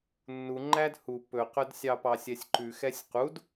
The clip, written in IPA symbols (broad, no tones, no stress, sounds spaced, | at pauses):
nː u ŋ͡ǃ æ d h u p ɵ q œ d sʲ ɑ p ɑ sʲ ɛ sʲ ǃ ʉ x ɛ sʲ q u d